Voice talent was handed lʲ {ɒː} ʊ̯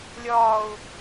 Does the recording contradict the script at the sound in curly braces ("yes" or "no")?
no